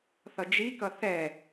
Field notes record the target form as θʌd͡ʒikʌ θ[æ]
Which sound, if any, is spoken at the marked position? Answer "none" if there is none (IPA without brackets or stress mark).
ɛ